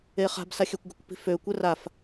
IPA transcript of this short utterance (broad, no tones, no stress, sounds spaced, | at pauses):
e χ a̤ b s a xʲ ø kʷ ɡ ə kʷ p i̤ f ø kʷ ɛ r a f